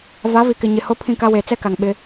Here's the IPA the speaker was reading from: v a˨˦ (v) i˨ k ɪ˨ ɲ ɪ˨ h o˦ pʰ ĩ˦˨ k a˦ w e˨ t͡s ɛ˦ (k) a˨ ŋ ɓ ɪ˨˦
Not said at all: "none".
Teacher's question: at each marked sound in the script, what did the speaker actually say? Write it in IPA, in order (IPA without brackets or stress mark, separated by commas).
v, k